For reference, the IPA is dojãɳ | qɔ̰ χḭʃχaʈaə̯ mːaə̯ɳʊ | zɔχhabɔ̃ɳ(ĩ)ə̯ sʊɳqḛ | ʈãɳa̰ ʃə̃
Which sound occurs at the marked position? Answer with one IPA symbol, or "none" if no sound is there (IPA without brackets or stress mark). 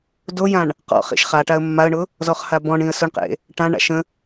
ĩ